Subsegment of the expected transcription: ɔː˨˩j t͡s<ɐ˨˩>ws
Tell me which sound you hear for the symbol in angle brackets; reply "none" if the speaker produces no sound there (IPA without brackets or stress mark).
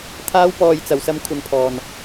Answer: ɐ˨˩